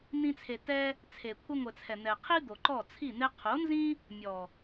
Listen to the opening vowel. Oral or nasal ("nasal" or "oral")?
nasal